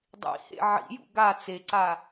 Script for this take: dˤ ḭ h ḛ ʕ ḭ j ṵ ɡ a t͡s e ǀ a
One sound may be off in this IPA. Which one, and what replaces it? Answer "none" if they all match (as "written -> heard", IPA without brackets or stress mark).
none